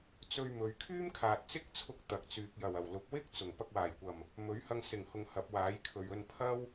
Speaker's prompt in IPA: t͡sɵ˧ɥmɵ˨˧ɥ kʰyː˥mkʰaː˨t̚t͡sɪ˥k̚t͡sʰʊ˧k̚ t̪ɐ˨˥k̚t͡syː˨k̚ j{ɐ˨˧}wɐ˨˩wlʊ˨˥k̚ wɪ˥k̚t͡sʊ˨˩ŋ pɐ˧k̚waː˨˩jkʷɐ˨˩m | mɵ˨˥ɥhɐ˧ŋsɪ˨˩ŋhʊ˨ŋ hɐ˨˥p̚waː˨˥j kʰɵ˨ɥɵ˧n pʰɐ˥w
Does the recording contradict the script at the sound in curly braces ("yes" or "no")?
yes